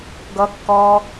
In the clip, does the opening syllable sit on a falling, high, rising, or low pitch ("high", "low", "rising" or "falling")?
high